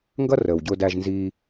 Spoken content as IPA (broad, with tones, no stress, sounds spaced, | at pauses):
ŋ ɡ ʌ˦ r əː˨ w ɟ ʊː˧ d æ˧ ʒ n z iː˧